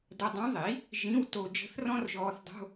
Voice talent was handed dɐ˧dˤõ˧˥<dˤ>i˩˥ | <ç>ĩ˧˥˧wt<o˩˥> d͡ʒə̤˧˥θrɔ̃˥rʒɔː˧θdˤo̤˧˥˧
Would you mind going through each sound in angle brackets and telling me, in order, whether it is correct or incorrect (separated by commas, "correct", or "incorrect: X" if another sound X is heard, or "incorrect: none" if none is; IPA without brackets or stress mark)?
incorrect: ðˤ, incorrect: ʒ, incorrect: o˧